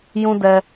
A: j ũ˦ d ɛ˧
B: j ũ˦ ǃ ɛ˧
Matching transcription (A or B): A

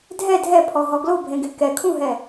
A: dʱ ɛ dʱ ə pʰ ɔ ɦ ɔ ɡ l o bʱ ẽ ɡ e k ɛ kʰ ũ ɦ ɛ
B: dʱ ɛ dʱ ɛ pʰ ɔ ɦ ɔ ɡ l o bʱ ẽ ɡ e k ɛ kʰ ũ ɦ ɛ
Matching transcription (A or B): B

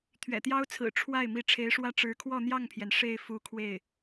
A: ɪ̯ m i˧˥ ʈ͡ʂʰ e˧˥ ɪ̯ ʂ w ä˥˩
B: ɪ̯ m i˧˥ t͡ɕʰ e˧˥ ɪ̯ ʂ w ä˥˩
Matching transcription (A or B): A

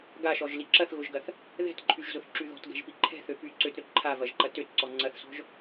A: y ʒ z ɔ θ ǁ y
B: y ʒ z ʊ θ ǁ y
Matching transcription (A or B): B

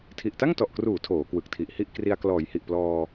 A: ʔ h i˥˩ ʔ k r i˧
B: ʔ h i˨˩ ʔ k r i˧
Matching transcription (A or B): A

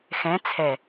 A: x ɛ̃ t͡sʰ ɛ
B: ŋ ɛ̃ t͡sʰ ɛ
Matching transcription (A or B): A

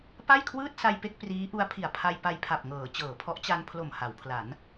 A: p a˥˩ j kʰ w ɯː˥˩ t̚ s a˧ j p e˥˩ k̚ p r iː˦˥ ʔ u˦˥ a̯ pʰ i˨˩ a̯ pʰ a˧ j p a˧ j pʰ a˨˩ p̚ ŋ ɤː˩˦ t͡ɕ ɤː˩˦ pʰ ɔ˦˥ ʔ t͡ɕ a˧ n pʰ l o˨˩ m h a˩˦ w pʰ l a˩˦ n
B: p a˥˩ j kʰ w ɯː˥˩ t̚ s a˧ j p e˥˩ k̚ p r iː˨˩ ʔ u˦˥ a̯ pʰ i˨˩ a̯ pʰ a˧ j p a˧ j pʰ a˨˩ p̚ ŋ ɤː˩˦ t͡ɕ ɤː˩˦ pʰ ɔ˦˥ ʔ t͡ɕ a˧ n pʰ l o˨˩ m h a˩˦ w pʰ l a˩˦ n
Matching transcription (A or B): A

